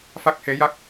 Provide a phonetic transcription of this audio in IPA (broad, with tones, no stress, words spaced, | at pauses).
fa˦˥k̚he˧˥ja˦˥k̚